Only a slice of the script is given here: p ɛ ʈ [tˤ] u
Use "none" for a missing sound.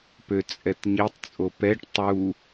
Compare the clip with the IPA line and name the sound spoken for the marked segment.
tˤ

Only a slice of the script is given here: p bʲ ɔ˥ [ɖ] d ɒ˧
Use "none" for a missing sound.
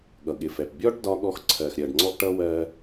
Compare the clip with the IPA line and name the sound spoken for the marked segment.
ɖ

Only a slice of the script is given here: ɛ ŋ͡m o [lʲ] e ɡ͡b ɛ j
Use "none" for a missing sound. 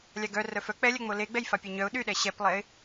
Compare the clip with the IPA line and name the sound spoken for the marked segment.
l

